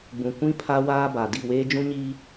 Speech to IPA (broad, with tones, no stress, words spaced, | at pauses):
ɡ͡bũ˨kʷĩ˦ pʰa˦waː˦ ba˨ di˦˨weː˦d͡ʒũ˦ɲiː˦